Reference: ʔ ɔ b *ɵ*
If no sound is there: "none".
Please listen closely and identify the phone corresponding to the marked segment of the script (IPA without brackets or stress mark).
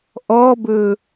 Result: ɵ